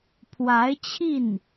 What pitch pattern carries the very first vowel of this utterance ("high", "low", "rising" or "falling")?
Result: rising